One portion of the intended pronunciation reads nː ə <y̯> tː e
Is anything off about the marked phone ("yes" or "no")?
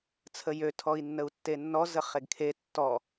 yes